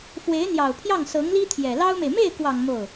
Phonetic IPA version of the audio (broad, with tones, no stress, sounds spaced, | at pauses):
f w e˧˥ ɪ̯ n̪ j ɑ˨˩ ʊ̯ pʰ j ɑ˥˩ ŋ s ɤ˧˥ ŋ l i˥ t̪ʰ j ɛ˨˩ l ɑ˥ ʊ̯ m e˨ ɪ̯ m e˥˩ ɪ̯ k w ɑ˨˩ ŋ m o˥˩ ʊ̯